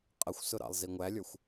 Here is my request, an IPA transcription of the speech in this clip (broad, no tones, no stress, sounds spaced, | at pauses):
qʼ ə xʷ s ʊ ɾ ɑ̰ lˠ z i ŋʷ æ lʲ ə˞ xʷ